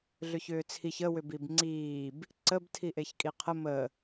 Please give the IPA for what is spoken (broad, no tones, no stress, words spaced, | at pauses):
ɮʏçʏːt͡sʰiç ə wʏbibŋ͡ǀiːb | ǀəb tʰiʔeçkʼiqʰə mə